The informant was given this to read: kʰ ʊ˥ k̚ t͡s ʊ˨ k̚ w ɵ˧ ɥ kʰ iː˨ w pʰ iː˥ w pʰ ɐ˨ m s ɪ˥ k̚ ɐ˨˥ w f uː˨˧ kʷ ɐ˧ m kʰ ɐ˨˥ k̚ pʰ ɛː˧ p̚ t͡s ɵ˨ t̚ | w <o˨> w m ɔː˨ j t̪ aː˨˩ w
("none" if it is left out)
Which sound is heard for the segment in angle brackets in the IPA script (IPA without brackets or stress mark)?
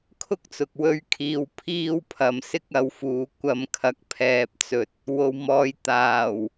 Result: o˨